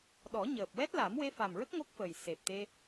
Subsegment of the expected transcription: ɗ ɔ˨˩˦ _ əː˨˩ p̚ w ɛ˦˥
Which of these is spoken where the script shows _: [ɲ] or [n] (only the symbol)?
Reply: ɲ